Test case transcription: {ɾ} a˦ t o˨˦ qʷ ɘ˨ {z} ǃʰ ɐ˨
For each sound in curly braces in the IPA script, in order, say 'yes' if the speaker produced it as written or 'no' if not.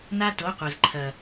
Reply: no, yes

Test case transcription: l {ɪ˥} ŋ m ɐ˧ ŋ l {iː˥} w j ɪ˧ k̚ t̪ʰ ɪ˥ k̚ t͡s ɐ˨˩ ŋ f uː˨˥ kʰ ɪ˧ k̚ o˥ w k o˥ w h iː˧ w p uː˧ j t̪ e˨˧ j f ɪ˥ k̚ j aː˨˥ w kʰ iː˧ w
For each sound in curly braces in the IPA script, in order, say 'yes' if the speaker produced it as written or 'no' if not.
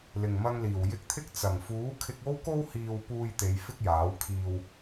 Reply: no, no

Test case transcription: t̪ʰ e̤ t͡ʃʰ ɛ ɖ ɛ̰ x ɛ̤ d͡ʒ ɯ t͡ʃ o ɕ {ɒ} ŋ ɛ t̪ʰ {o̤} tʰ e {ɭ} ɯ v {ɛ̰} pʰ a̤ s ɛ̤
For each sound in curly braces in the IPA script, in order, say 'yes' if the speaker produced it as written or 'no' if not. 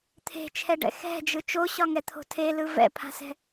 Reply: yes, yes, no, yes

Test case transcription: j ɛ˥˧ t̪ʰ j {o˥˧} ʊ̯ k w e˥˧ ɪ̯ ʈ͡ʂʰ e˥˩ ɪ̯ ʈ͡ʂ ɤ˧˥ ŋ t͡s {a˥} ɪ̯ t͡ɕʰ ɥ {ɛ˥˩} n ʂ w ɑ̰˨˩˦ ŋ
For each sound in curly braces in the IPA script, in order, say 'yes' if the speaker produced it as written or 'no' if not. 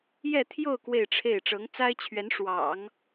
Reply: yes, yes, no

